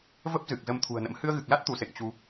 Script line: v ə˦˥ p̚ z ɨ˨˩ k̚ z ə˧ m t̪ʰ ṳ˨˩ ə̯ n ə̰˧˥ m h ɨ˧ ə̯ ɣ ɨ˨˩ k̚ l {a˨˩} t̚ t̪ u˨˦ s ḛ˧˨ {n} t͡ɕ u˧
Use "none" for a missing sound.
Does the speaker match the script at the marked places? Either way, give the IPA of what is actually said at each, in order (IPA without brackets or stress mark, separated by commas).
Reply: a˦˥, ŋ